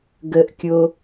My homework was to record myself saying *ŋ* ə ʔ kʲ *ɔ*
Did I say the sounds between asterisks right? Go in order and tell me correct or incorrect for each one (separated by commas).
incorrect, incorrect